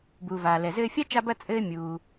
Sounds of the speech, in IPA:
b uː˩ v aː˩ l ɛ˩ z ɘː˧ fʲ a˥ t͡ʃ a˧ b ɐ˧ t͡sʼ ɘː˧ mʲ uː˩

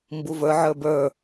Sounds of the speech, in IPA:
m b u v ə˞ ʕ ə˞ b ə˞

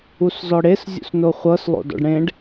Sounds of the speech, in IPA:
u s z ɔ ɽ e s zʲ ṵ s n o χʷ ɤ s lˠ o̰ d ɔ̰ ɖ ɽ ẽ ɖ

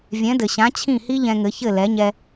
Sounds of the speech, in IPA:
vʲ ɛ̃˩˥ d ɘ˩ ɕ ã˩˥ t͡ɕʰ ĩ˥˩ h i˥ ʎ ɛ̃˧ ŋ ɘ˩˥ ç ɘ˥˩ l ɛ˩˥ ɲ ɛ˧

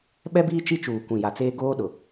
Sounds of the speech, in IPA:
ɓ ɛ˦ b iː˦ t͡ʃ i˦ t͡ʃ uː˨ kʷ ĩ˨ j a˨ t͡s eː˦ ɡ oː˦ ɗ ʊ˨

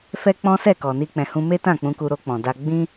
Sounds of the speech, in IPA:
f ɛ˦ k͡p ɔ̃˦ s ɛ˦˨ k ɔ˨ n i˧ k͡p ɛ̃˨ h ũ˧ m e˦ t ã˦˨ k͡p ũ˧ k u˧ ɾ o˧ k͡p ɔ̃˨ d a˧ ɡ͡b ĩ˦

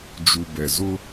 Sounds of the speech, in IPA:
d͡ʒ u˨ b ɛ˨ z ʊ˦

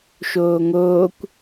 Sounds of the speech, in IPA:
ʃ oː ŋ oː kʷ

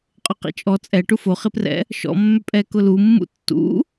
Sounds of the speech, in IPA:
qʼ ʊ q ḭ t͡ʃʼ ɔ t͡sʼ ɛ ʈ u f o χ ɪ p r ɛ̰ | ʃ ɔ̰ mː ʏ pʼ ɛ k ʊ l u mː ṵ tː ṵ

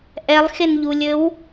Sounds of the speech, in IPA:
ʔ ɛ lˠ x e n ʎ u lʲ ɘ w

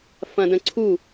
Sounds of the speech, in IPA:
f ɐ̃ d ə̃ ǀʰ u

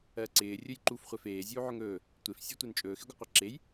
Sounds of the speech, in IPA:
ɜ ǀ ɪː rʲ ɵ j ǃ u f χʷ ɛ f eː zʲ uː ʕ ɵ ŋ ɵː | tʷ e f sʲ e tʷ e n t͡ʃʼ ɵː x ɪ ɡʷ ɪ qʷ ɛ ǁ e j

